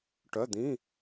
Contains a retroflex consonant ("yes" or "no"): yes